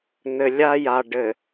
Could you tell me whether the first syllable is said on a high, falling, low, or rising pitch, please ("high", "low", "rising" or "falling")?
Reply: low